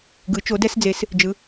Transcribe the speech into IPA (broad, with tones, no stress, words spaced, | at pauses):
ɡɯ˩˧t͡ʃo˩˧dɛ˧sd͡ze˩˧s | d͡ʒɯ˩˧